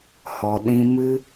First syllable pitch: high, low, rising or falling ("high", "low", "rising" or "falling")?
low